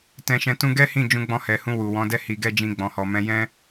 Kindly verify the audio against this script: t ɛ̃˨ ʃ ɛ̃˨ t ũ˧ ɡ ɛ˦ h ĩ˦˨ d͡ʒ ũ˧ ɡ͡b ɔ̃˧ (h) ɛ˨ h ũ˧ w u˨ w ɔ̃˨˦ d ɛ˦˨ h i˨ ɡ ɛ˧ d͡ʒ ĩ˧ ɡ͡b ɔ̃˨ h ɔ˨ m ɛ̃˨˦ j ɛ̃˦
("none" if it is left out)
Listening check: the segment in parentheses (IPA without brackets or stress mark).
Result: h